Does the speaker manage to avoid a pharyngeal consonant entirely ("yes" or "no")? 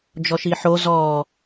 no